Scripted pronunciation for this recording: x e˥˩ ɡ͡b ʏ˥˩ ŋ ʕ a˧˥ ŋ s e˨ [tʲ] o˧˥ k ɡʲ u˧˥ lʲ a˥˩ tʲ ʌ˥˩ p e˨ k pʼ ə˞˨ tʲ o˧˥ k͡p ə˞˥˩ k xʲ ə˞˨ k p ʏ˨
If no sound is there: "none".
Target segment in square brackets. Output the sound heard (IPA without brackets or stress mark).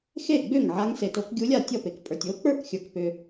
t